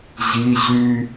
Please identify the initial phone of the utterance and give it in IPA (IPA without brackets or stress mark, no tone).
ʑ